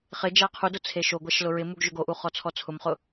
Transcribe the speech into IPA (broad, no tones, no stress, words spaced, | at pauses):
χɪ d͡ʒaqʰudʊ t͡sʰeʃoɡʷaʃ lʊɹɪmuɡ ʒʊɡoʔu χɔt͡sʰɔt͡sʰʊmχʊ